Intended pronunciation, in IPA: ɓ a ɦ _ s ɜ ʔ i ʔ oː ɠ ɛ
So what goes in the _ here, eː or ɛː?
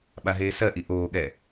eː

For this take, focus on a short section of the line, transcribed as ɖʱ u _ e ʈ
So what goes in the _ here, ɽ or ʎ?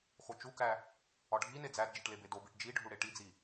ɽ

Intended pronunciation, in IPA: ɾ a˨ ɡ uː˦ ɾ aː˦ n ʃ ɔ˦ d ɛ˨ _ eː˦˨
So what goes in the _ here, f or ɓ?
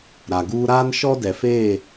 f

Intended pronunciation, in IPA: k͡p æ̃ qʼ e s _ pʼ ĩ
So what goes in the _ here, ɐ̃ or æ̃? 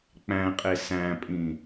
æ̃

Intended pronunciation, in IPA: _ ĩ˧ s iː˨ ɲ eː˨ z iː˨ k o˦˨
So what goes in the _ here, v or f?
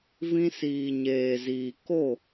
v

